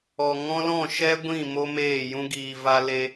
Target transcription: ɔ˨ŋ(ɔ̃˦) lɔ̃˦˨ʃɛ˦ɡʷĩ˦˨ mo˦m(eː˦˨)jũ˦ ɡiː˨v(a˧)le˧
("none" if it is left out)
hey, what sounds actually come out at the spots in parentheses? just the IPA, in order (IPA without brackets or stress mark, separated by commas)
ɔ̃˦, eː˦˨, a˧